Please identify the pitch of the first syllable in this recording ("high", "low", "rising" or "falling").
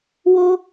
high